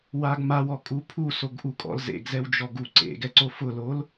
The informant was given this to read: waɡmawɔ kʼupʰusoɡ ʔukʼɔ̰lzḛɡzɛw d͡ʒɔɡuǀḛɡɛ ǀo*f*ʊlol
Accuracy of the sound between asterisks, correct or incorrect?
correct